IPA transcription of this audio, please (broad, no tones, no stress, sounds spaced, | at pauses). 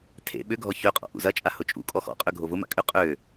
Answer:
tʰ ḛ ɓ ʏ ɡʱ ɔ ç ø qʼ ɔ̰ ʔ ṵ z ɐ t͡ʃʼ a h ʊ t͡ʃʼ ṵ kʼ ɔ x ɔ̰ qʼ ø ɡʱ o v ʊ m a̰ kʼ ʏ qʼ ø